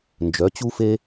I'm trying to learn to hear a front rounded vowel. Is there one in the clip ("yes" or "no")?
yes